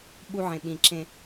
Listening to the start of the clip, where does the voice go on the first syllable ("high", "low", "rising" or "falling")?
high